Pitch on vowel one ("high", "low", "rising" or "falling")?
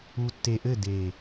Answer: low